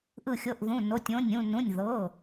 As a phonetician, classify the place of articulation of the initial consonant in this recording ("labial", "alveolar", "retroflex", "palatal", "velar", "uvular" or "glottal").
glottal